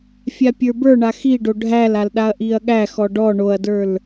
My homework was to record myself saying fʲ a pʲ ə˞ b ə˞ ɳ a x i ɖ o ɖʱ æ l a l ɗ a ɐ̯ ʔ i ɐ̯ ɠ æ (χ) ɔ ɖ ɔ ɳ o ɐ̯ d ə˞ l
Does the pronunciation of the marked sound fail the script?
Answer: yes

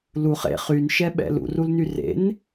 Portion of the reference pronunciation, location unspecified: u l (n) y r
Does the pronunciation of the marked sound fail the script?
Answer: no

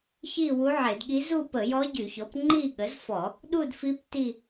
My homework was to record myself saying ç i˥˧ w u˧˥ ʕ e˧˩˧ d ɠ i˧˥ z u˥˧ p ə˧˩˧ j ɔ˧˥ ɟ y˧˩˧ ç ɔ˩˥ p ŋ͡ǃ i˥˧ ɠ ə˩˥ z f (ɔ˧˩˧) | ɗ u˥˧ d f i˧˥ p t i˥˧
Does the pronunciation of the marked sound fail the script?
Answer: no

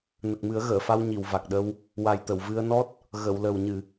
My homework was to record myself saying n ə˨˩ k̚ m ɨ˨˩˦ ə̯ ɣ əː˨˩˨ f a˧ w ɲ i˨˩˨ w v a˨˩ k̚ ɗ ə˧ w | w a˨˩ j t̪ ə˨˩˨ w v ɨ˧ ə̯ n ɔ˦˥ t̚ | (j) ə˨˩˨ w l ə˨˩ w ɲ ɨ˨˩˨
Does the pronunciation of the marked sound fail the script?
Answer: yes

